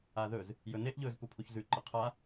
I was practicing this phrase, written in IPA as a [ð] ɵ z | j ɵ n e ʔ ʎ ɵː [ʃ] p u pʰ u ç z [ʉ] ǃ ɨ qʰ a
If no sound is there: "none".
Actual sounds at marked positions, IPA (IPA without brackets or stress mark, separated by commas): ð, z, ʉ